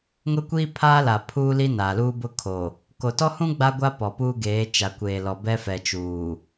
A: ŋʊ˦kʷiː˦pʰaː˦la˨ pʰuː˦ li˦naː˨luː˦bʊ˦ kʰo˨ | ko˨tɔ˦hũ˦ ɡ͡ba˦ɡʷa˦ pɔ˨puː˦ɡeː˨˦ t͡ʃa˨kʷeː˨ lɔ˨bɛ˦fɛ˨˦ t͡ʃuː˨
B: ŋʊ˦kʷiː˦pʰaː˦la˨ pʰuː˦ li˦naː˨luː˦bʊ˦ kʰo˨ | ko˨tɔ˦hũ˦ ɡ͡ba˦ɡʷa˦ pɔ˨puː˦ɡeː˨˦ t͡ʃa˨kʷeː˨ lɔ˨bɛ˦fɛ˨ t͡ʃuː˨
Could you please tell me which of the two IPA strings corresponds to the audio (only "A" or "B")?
B